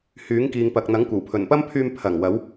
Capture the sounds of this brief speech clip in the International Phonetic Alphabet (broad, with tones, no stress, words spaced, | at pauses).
hyː˨˥ŋkiː˨ŋ pɐ˨k̚n̪ɐ˨˥ŋ kʷɐ˨˩wpʰɵ˨˩npɐ˥mpʰyː˧m pʰɐ˨˩ŋ wɐ˨˥w